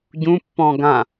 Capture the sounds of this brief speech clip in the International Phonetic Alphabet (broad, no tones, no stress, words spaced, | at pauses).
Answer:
ɟũpːɔ̃ ɡã